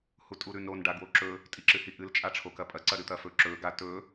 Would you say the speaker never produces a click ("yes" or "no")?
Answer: no